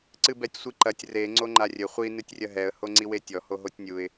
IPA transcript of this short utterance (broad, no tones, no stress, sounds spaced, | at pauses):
ǀ ɨ b ɛ tʲ sʷ i ǃ ɐ tʲ r e ŋ͡ǀ o ŋ͡ǃ a rʲ ɘ χʷ i n ɨ tʲ rʲ ɐ ɦ ɛ ə̯ h o ŋ͡ǀ i w e tʲ ɔ h o ɦ o tʲ nʲ u ɪ̯